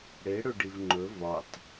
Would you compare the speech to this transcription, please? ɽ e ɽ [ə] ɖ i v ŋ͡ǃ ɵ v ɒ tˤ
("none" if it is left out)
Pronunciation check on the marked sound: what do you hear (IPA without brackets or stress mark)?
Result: ɵ